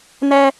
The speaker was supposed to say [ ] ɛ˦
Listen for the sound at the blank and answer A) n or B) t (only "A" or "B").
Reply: A